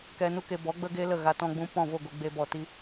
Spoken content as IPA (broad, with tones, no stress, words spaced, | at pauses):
kɛ˧nu˦ke˧bɔ˨˦ ɡ͡bə˧ɡe˧ lə˦˨ɣa˧ tɔ̃˧ɡ͡bũ˧ pɔ̃˦˨vo˦˨ ɡʷe˧ɡ͡be˧bɔ˨ ti˧